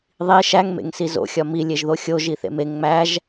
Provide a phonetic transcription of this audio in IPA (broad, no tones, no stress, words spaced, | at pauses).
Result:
ðˤi ʃæŋmḛŋ sizo̰xʲɒ mi lʲeʒðoxʲo ʒiθḛmeŋ ŋ͡mæʒ